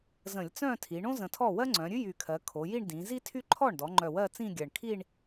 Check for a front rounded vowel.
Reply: present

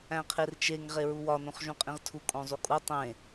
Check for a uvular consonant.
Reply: present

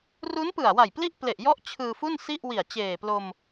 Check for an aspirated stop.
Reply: present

